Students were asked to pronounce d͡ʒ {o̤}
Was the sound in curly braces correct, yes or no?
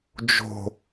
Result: yes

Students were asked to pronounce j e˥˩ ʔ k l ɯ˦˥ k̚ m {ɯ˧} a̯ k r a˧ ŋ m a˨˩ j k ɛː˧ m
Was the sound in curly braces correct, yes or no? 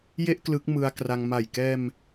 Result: yes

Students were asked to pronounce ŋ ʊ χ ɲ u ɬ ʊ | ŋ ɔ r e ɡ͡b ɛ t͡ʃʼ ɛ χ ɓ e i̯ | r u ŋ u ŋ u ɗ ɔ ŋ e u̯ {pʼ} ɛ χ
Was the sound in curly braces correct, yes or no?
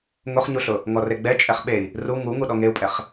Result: yes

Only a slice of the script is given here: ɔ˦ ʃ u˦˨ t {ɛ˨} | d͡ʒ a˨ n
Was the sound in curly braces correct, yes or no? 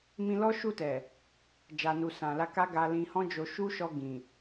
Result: yes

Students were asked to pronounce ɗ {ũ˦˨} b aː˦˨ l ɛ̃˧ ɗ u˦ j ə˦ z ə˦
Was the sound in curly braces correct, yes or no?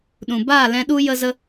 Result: no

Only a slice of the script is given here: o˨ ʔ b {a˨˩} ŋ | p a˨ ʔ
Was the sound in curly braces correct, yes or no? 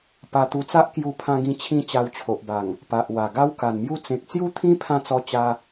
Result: yes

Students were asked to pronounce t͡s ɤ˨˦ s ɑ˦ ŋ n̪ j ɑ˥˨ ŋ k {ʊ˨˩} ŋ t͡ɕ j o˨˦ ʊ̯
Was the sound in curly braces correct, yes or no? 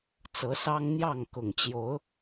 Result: yes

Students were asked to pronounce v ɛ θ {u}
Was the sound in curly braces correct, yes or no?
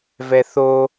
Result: no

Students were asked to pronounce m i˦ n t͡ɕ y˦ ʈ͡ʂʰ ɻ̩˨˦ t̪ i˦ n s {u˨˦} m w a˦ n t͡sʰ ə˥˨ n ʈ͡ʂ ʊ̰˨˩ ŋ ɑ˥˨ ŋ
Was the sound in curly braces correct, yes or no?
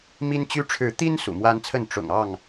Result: no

